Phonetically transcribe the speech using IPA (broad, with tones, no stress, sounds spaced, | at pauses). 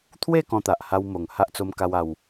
t̪ʰ w e˥˧ k ɔ̃˧ t̪ a˨ ʔ h a˦ w m o˧ ŋ h a˦ ʔ t͡s o˦ m k a˦ w a˦ w